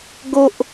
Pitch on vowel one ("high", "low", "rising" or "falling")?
high